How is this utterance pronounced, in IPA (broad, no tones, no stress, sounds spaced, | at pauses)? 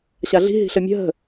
ɕ a ɮ i̤ ɦ i̤ ɬ ə mʲ ə̤ ɦ ə̤